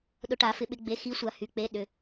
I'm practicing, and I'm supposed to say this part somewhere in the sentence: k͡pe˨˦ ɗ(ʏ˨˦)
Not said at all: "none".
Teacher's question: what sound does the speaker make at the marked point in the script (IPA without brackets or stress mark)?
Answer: ʏ˩˧˩